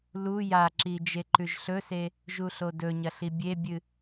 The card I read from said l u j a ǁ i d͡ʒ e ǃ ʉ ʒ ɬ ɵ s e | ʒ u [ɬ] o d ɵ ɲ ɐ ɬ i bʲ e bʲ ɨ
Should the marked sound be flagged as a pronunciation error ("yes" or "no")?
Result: no